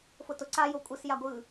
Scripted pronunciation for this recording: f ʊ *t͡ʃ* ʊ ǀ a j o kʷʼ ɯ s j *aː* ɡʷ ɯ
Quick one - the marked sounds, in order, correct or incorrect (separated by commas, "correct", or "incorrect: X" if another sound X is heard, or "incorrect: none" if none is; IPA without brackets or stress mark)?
incorrect: t, incorrect: a